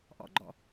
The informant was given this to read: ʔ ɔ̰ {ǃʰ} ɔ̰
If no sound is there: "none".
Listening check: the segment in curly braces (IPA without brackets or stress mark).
ɡ͡ǃ